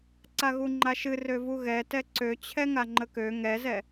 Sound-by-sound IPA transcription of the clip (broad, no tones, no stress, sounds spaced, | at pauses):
ǀ a ɣ u ŋ͡ǃ a ʃ ɨ r ø v u ɣ ɛ t ɛ ǀ ø t͡ɕʰ ɛ ŋ a ŋ͡ǃ ə k ø ŋ ɛ z ɛ